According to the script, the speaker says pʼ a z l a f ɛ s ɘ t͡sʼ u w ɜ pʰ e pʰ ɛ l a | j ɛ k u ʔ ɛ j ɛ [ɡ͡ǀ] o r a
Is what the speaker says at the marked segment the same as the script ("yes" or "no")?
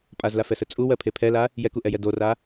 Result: no